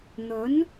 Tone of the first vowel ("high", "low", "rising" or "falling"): rising